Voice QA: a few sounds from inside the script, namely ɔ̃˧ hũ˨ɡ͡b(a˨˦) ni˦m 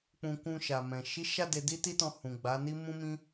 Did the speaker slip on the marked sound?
no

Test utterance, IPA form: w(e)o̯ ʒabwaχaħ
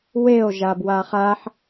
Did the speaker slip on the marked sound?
no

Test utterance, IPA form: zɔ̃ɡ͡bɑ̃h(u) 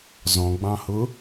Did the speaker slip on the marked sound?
yes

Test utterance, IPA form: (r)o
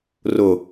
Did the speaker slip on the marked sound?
no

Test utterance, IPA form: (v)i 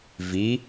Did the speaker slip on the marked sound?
no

